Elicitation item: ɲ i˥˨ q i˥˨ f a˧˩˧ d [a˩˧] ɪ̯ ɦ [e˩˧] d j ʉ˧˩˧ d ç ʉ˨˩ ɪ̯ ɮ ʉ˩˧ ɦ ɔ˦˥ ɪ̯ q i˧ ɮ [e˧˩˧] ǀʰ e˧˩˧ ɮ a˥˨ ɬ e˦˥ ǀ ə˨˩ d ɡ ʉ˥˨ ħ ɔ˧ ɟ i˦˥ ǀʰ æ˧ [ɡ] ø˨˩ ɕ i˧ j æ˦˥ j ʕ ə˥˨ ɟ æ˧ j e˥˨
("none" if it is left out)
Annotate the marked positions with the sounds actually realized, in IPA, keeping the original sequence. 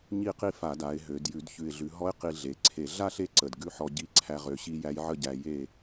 a˩˧, ø˩˧, e˩˧, ʁ

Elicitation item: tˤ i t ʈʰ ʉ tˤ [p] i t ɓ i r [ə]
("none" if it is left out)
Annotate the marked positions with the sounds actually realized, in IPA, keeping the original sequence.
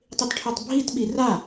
bʱ, a

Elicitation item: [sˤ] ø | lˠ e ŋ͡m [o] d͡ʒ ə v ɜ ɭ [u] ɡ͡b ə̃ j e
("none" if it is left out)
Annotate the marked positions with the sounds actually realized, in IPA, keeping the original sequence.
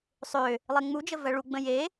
sˤ, u, u

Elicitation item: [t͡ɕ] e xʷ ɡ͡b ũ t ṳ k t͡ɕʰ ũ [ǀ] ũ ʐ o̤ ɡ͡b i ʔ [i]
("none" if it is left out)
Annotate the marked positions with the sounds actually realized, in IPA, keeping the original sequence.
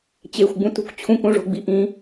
t͡ɕ, k, ĩ

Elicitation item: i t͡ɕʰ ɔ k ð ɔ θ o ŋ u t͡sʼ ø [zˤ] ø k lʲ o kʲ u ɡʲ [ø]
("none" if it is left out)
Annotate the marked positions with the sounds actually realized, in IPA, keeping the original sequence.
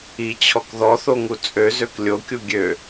z, ø

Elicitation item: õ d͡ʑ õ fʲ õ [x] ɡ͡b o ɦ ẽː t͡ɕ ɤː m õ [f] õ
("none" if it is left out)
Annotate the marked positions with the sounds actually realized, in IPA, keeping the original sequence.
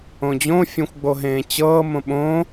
xʷ, ɓ

